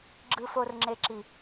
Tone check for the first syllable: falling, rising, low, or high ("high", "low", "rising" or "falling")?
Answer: low